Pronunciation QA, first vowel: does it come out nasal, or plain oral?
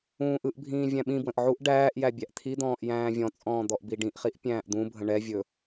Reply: nasal